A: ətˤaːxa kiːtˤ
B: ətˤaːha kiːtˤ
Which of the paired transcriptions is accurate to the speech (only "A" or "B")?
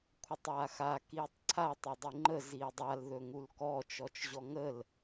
A